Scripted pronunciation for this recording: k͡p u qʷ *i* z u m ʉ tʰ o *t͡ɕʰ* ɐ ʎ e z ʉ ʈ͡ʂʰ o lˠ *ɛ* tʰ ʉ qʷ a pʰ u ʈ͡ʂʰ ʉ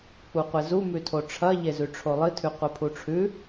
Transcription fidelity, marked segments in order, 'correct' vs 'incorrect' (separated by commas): incorrect, incorrect, incorrect